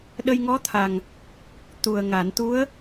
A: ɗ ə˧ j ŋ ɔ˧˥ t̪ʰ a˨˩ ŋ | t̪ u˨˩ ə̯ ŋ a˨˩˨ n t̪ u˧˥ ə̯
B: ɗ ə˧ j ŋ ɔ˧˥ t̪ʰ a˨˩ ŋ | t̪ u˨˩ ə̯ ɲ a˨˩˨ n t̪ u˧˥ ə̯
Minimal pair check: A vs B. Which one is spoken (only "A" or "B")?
A